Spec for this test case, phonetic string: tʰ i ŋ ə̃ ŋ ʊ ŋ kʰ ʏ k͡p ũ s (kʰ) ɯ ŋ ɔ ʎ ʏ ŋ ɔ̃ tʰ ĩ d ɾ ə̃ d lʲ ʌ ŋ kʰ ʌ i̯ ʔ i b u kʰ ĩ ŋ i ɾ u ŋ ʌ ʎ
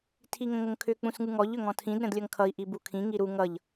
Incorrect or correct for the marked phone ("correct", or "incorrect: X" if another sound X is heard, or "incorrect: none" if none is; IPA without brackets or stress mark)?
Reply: incorrect: ŋ